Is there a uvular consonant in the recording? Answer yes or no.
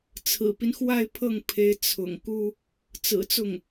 no